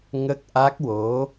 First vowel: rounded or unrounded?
unrounded